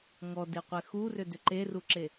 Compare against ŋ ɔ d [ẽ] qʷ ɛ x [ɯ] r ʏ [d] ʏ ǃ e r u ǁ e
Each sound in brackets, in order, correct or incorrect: incorrect: e, incorrect: u, correct

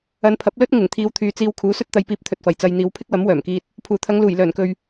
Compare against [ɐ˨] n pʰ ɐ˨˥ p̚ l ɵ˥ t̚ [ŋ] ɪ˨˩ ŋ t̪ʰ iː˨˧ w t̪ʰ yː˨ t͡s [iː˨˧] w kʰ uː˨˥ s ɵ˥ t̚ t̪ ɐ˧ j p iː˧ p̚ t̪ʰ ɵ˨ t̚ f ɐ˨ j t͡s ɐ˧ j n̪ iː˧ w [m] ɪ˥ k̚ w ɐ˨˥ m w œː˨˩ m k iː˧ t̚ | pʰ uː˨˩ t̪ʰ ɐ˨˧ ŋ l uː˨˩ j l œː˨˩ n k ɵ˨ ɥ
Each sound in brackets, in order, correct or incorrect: incorrect: ɐ˨˧, correct, incorrect: iː˧, incorrect: pʰ

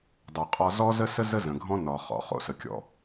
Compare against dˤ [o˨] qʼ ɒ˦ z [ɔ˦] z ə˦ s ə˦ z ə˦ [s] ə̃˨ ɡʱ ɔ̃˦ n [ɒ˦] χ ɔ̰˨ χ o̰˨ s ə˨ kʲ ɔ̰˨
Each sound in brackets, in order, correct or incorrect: correct, correct, incorrect: z, incorrect: ɒ˨

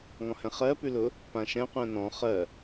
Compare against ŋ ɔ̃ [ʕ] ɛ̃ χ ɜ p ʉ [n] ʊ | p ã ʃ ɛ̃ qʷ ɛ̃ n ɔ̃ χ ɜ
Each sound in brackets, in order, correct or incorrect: incorrect: h, incorrect: l

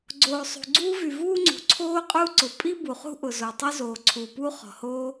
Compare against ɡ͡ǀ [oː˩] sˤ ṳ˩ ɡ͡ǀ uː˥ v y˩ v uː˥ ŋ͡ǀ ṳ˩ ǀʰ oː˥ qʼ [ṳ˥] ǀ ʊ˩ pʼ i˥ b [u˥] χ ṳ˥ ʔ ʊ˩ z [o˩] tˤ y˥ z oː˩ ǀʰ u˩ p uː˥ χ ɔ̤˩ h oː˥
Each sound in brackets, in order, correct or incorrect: correct, incorrect: u˥, incorrect: u˩, correct

